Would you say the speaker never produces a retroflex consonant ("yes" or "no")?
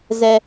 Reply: yes